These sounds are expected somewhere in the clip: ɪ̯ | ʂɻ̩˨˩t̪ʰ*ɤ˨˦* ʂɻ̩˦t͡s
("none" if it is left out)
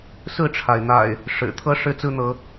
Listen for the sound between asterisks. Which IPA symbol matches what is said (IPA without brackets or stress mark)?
ɤ˦